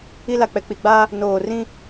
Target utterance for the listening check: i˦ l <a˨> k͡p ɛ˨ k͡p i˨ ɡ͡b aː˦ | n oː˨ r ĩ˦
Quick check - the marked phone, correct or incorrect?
correct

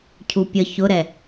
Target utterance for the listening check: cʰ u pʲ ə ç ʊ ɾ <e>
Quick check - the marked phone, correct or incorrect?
incorrect: ɛ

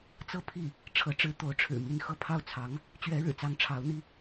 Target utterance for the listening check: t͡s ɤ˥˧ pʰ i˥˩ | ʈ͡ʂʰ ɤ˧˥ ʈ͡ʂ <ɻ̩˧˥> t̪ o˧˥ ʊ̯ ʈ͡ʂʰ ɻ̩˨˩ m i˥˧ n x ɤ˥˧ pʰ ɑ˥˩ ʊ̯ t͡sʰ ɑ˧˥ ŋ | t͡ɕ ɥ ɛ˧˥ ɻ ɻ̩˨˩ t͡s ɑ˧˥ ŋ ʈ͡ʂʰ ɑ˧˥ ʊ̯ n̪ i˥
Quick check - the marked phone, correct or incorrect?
correct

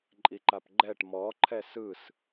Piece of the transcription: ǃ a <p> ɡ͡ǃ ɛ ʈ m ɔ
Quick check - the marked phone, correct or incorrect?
correct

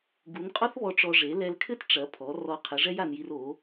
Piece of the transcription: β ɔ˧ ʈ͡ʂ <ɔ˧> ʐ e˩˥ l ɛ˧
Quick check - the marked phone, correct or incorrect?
correct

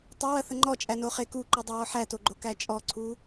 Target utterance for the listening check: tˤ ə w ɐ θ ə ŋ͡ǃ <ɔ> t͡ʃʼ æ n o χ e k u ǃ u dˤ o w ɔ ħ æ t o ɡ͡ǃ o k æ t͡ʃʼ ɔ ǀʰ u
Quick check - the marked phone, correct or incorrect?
correct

